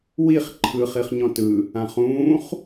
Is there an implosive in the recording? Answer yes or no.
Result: no